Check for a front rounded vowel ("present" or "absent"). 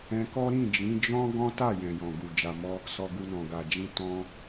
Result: absent